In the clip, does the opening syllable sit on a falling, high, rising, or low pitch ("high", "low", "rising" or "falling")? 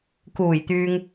low